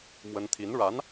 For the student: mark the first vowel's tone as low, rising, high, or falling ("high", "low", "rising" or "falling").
high